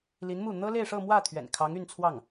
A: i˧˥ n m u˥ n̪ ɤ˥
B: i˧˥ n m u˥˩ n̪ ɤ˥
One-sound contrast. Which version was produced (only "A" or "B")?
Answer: B